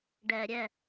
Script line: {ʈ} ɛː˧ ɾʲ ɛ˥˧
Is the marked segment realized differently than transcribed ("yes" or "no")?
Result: yes